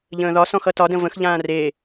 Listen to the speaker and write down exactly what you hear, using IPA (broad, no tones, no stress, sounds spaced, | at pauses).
ʎ ə̃ː ð ɒ s ɔ̃ x ʌ t ɒ d ə̃ v ə̃ x ʎ ãː r e